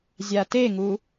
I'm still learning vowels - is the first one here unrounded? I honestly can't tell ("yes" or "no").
yes